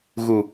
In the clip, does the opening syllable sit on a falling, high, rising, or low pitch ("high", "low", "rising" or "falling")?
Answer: low